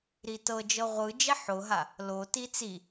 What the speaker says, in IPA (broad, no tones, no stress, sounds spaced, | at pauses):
ɾ i t ɤ d͡ʒ ɤ ʁʷ ɯ d͡ʒ ɛ ħ o ɦ a | l o t i t͡s i